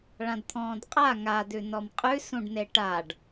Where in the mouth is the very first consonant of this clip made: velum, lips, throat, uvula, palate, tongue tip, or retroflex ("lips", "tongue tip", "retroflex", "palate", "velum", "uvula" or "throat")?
retroflex